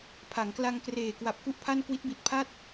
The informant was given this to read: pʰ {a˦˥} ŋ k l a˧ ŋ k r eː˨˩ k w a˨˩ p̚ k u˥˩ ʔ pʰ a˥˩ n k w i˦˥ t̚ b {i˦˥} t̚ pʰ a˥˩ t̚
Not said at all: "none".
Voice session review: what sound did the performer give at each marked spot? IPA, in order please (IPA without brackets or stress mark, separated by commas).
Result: a˩˦, i˨˩